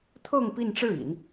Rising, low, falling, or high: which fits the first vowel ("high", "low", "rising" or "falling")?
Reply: falling